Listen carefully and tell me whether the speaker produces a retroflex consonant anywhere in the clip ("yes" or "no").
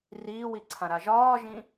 no